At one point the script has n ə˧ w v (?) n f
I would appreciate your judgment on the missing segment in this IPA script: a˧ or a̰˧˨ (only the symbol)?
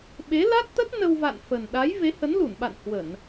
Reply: a̰˧˨